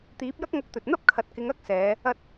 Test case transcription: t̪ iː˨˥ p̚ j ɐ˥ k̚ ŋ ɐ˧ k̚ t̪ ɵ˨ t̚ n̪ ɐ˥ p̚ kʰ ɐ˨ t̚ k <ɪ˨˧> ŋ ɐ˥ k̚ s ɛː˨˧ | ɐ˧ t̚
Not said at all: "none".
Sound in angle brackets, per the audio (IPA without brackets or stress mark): ɪ˨˧